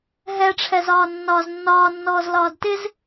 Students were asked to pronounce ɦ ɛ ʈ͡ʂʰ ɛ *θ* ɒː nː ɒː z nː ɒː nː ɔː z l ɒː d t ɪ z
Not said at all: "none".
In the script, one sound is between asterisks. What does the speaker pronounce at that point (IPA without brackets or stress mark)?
z